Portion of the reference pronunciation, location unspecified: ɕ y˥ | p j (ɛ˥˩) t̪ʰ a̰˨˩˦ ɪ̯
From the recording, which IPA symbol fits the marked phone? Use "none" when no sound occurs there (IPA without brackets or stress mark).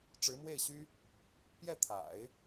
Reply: ɛ˥˩